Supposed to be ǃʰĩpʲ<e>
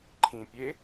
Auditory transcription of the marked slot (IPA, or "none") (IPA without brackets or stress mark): e